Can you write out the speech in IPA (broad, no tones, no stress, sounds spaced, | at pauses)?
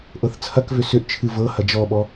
ʔ ɤ θ t͡sʰ ɐ k v ʏ s ʏ ʔ t͡ʃʰ ɨ v ɤ h ɐ d͡ʒ ɔ ɓ ɔ